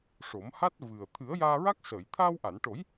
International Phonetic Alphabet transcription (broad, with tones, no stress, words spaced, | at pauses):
ʂo˨˩˦m ha˦˥t̚ vɨ˨˩ə̯ t̪ʰɨ˨˩˦ə̯jaː˧ɹa˦˥k̚səː˨˩˨j t̪ʰaː˧wʔa˨˩˨nʈo˨˩˦j